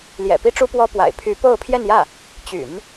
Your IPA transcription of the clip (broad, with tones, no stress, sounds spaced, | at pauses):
l j ɛ̰˨˩ p i˥ ʈ͡ʂ u˥ p w ɔ˥ p w a̰˨˩ ɪ̯ pʰ y˧˥ p o˥˧ ʊ̯ pʰ j ɛ˥˧ n j ä˥˩ | t͡ɕ y̰˨˩˦ n